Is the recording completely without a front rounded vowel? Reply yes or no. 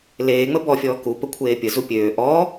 no